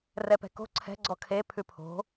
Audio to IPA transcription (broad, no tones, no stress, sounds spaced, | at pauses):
r ɛ p ɛ̤ k o̤ ǀʰ ɛ̤ ɡ͡ǀ ɔ kʰ e pʰ ʉ pʰ o̤